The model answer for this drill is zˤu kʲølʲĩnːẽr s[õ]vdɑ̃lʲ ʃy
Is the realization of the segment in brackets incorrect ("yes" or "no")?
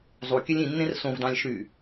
no